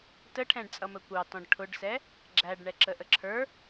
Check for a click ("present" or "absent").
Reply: present